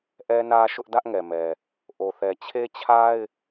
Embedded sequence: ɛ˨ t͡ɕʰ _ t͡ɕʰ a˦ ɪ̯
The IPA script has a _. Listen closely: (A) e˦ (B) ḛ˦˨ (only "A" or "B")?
A